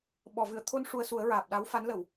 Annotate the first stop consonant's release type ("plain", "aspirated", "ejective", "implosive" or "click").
implosive